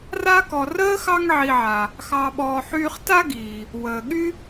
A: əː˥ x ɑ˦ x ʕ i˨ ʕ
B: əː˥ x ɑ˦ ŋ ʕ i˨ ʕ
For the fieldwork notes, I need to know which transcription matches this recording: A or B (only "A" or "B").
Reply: B